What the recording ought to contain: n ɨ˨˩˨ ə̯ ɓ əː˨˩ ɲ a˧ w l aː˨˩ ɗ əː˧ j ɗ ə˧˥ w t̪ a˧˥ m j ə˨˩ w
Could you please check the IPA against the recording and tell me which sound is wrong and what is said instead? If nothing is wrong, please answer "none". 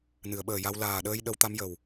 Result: ɲ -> j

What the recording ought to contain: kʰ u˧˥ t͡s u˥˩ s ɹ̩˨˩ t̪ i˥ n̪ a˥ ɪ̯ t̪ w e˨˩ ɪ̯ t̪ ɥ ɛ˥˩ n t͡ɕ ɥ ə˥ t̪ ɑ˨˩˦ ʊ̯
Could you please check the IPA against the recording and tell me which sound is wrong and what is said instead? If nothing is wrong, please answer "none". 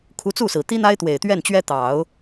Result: ə˥ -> ɛ˥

